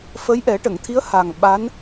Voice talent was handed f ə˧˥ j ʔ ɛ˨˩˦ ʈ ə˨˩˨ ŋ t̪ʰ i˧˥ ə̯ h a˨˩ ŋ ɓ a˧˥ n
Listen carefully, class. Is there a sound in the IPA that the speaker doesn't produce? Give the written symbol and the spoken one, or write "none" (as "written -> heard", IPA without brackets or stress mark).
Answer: none